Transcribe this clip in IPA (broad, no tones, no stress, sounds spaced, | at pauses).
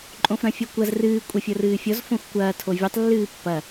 ǃʼ õ f ɾ ɐ̃ fʲ ɔ kʷ ɐ z r ɨː kʷʼ ɐ fʲ ɤ r ɨː fʲ ɔ z f õ xʷ kʷ ɐː tʰ o vʲ ɛ tˤ lː ɨː pː ɐ